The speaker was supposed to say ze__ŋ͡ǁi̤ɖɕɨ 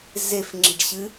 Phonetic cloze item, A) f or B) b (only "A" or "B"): A